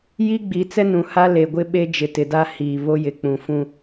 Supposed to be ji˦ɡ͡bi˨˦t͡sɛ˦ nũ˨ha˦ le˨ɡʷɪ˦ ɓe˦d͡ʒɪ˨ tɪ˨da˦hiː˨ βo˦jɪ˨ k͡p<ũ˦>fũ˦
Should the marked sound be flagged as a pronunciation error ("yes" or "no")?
yes